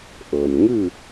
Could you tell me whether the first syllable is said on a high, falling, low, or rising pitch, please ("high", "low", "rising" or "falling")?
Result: low